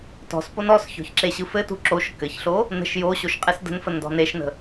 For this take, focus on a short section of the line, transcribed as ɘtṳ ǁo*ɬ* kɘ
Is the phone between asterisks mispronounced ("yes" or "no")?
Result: yes